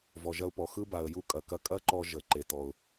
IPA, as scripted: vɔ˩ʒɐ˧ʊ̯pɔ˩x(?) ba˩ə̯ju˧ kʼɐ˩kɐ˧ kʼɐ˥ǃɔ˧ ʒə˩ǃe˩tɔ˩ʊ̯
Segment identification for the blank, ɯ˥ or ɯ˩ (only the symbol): ɯ˥